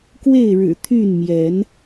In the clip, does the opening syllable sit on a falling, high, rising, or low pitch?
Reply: falling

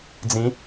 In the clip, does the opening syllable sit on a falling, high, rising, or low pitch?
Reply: rising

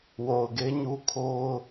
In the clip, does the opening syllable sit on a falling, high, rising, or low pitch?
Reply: low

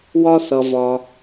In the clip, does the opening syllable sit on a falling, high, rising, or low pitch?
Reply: high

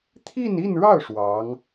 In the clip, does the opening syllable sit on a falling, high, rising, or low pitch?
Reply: falling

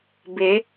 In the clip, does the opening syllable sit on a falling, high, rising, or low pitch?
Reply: rising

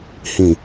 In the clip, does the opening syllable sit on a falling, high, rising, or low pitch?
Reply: low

